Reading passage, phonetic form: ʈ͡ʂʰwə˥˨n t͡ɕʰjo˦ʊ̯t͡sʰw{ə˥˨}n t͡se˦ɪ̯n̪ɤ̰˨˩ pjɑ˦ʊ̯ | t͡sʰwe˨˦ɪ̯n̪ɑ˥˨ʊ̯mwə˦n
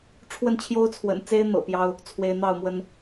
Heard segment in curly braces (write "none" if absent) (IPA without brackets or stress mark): ə̰˨˩